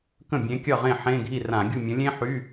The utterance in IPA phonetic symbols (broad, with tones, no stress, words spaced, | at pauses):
kə̃˥˩bʲẽ˨˥kʲʌ˥˩ʁẽ˥˩ ħẽ˧˥˧ɡʱi˥˩ rã˧˩˧ɡʲu˥˩mʲə̃˨˥ lʲẽ˥ħy˧˥˧